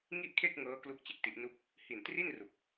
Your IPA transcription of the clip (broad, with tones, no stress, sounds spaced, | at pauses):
ŋ i˥˩ ʔ kʰ e˥˩ k̚ ŋ ɤː˦˥ k l u˥˩ k̚ t͡ɕ e˨˩ k̚ t i˦˥ ʔ n u˥˩ k̚ | h i˨˩ n t r i˥˩ n r u˨˩ k̚